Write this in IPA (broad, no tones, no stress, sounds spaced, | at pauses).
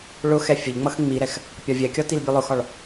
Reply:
ɭ ʊ x ɛ fʲ ə ʎ ŋ͡m ʌ x ŋ͡m i ɾ ɛ x | pʲ ɒ vʲ ɛ kʲ ɒ t i l bʲ ə lˠ ʊ x ɒ ɭ